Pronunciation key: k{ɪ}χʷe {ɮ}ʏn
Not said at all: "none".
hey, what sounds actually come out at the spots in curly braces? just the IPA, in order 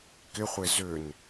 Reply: ɪ, z

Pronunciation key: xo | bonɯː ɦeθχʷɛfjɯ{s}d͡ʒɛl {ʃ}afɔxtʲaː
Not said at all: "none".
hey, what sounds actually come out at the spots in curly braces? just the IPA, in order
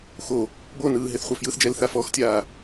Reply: θ, θ

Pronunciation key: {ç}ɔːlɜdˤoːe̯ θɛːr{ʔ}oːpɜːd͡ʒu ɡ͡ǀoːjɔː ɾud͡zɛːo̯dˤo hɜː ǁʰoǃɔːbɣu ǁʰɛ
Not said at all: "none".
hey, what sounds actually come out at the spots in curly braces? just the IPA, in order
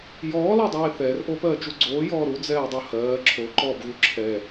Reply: j, ʔ

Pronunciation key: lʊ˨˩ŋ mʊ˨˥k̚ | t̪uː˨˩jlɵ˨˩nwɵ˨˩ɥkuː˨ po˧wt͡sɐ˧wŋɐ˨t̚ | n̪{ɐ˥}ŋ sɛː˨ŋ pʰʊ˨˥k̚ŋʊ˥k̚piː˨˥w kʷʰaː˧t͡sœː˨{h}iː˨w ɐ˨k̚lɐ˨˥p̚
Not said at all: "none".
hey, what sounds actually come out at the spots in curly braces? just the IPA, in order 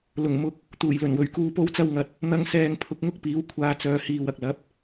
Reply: ɐ˧, h

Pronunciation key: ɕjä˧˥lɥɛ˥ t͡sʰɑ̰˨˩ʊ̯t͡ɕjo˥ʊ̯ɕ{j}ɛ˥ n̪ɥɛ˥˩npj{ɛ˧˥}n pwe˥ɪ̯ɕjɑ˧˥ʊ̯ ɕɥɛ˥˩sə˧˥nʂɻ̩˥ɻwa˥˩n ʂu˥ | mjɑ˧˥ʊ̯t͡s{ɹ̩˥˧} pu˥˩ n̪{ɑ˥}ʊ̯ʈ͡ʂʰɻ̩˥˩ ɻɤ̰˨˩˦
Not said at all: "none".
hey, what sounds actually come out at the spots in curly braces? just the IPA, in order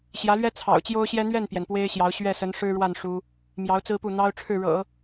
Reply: j, ɛ˩, ɹ̩˥, ɑ˥

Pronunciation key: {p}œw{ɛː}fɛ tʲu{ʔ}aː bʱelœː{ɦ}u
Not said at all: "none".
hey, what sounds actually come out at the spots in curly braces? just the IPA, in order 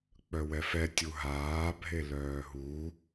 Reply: k͡p, ɛ, ɦ, ɦ

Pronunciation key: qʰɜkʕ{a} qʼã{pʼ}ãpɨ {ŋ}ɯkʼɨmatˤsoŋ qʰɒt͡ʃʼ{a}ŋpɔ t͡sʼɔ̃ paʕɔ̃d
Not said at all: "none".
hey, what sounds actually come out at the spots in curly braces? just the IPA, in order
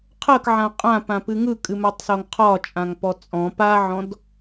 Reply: ã, p, ŋ, ã

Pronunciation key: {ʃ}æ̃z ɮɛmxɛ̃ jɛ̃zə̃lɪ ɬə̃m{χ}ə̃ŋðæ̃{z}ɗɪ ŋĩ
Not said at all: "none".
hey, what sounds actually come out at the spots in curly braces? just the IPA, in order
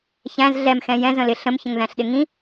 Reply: ç, ç, ɬ

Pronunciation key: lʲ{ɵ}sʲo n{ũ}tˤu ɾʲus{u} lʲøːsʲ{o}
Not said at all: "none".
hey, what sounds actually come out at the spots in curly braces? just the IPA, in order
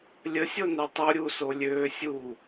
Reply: ə, u, o, u

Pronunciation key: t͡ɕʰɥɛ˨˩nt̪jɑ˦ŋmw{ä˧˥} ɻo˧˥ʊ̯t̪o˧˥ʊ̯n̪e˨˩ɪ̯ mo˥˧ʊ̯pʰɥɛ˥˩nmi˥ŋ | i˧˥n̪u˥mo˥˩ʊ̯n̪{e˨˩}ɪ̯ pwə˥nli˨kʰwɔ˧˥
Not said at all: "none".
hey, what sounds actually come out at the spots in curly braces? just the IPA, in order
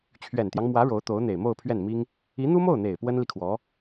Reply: ä˧˥, e˨˩

